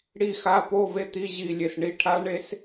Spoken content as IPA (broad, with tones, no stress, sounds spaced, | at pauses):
ɽ i˦˨ x a˧˥˧ p o˧˥˧ v e˦˨ t̪ i˧˥˧ ʑ i˦˨ lʲ e˦˨ s ɳ i˧˥˧ ʈʰ a˦˥ ɳ e˦˥ s